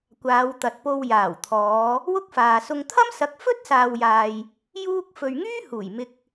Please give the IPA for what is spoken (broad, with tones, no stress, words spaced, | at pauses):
kʷaː˨˧wt̪ɐ˨t̚po˧w jaː˨˩wt̪ʰɔː˨˧ | wʊ˥k̚faː˨sʊ˧ŋ t̪ʰɐ˥msɐ˨˥k̚ fɵ˥t̚saː˨wjaː˨j | juː˥k̚ fɵ˨ɥŋyː˥ huː˨˩jmɪ˧k̚